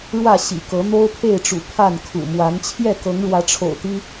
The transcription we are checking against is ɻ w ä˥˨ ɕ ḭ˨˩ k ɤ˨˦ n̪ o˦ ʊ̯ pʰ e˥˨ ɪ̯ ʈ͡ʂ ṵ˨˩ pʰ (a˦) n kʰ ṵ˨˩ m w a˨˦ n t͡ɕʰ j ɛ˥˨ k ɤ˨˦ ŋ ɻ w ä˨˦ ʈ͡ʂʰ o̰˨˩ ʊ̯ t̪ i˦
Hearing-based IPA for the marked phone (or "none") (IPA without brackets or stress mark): a˥˨